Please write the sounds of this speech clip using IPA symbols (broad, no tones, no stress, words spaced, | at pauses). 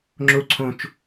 ŋ͡ǁo ǀʰõt͡ʃ